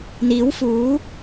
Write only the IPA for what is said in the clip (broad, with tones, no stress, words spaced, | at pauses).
n̪iː˨˥wfuː˨˥